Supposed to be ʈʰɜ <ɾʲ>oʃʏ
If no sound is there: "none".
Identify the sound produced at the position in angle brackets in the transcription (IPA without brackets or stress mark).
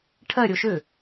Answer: ɾʲ